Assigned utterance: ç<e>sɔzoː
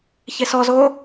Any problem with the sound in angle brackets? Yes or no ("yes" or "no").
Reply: no